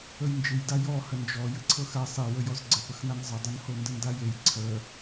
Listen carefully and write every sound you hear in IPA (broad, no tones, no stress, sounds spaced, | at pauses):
ə j n d͡ʒ ɨ j d a j ɔ h ə n d͡ʒ ɔ j ɨ ǀʰ ɤ x a sˤ e w ə j ɔ z ɡ͡ǀ ə p ə x n a n zˤ ə dˤ ɨ n h o n d ə n d a j e j ǀʰ ə